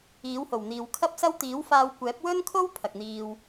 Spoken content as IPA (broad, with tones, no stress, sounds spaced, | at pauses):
iː˨˥ w h o˨˩ w n̪ iː˨ w kʰ ɐ˥ p̚ s ɐ˥ w t̪ iː˨˥ w f aː˧ w kʷ ɛː˨˥ p̚ w ɵ˥ n kʰ o˥ w pʰ ɐ˨ k̚ n̪ iː˧ w